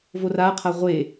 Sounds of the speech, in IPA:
v o r a qʰ a ʁʷ e

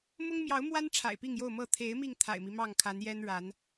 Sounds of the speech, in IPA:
m ʊ˦ ŋ m j ɑ˨˦ ʊ̯ m w a˦ n ʈ͡ʂʰ a̰˨˩ ɪ̯ p i˥˨ ŋ j o˥˨ ʊ̯ m ɤ˥˨ t̪ʰ e˨˦ ɪ̯ m i˧ ŋ t̪ʰ a̰˨˩ ɪ̯ m i˦ m ɑ˥˨ ŋ kʰ a˨˦ n j ɛ˦ n ɻ a˨˦ n

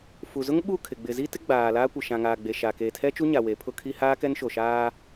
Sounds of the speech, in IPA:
f u˨ z ʊ˦ ŋ ɓ u˦˨ kʰ ɪ˨ ɡ͡b ɪ˨ z i˦ t ɪ˦ ɡ͡b aː˨ l aː˦ kʷ ɪ˨ ʃ ã˨ ŋ aː˨ ɡ͡b e˨ ʃ a˨ k eː˨ tʰ ɛ˦ t͡ʃ u˦ ɲ a˨ w e˨˦ pʰ ʊ˦ kʰ i˦ h aː˦ k ɛ˦ n ʃ o˨ ʃ aː˦

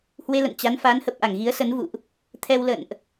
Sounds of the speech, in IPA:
h w e˧ l ə̰˧˨ n t͡ɕ a˨˦ n f a˨˦ n h ə˨˩ p̚ ʔ a˧˩ ŋ ɣ i˨˦ ə̯ s ə˨˦ n v ṵ˧˨ ʔ | t̪ʰ ɛ˧ w l ə̰˧˨ n ʔ

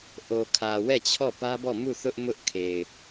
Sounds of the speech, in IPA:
ʔ o˨ kʰ ä˨ w ɛ˦˨ t͡ɕʰ ɔ˦˨ p ä˦ b ɔ˦˨ m u˦˨ θ ʊ˦ ʔ m ʊ˦ ʔ kʰ e˨ ɪ̯

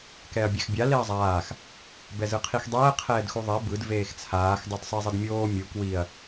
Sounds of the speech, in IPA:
k ɛ ɐ̯ bʲ ɛ x bʲ a l e ɐ̯ zˤ aː x | b ɛ z ɯ qʰ i x dˤ ɛː qʰ ɛː d x u ðˤ e b ɯ d v eː x t͡sʰ aː x dˤ u d sˤ i zˤ e d mʲ oː mʲ u k w i ɐ̯

